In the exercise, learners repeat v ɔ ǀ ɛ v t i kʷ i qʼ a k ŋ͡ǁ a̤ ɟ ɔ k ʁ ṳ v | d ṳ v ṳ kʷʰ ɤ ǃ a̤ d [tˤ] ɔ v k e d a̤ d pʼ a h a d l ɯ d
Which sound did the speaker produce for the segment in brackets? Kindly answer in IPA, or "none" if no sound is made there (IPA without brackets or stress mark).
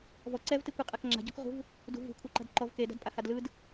ǃ